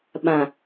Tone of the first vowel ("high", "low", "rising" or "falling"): low